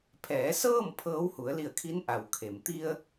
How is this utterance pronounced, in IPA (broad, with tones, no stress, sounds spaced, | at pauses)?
pʰ ɛː˩˧ s ɤː˥˨ m pʰ ɤː˧˥ w h u˩˧ ə̯ l i˧˩ ə̯ kʰ i˧˥ n ʔ a˩ w kʰ e˩ m t̪ i˧ ə̯